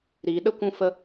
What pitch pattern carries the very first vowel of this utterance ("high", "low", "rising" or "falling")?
low